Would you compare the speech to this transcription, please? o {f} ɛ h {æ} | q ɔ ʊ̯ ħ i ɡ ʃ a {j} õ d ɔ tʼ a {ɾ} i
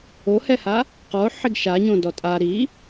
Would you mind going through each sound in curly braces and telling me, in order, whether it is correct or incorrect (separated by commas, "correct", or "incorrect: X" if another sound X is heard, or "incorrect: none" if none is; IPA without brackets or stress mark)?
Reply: incorrect: h, incorrect: a, incorrect: ɲ, correct